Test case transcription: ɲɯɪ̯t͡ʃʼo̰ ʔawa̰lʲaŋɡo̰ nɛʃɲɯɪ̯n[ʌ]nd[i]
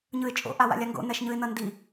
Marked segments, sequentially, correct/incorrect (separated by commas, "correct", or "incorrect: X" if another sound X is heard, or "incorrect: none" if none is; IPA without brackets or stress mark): correct, correct